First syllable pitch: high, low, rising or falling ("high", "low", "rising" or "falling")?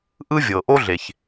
high